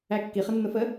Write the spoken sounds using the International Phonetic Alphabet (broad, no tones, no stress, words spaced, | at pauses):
ækːi χənːʊfə